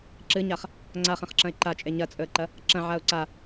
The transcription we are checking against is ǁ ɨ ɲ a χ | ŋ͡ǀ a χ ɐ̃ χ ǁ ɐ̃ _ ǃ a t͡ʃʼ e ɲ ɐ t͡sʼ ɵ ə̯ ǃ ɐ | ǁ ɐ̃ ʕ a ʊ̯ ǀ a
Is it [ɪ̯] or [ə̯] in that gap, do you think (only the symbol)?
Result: ɪ̯